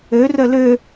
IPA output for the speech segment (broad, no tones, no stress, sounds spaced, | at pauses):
ø r œ l ø